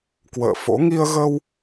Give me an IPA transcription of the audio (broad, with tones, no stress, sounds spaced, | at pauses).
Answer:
k w ə̰ː˧˨ f o̰˧˥ ŋ i˧ ə̯ ɣ ə˧ w